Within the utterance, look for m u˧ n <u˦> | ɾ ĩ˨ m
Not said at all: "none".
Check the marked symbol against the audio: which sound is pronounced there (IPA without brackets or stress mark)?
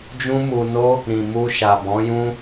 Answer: o˦